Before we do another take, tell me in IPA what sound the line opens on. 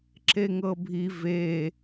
ǁ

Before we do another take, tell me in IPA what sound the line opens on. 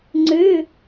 ŋ͡ǀ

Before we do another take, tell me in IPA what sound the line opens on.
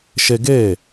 ʃ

